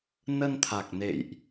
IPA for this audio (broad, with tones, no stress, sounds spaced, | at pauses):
n ə˧ n t̪ʰ a˨˩ k̚ n ḛ˧˨ j ʔ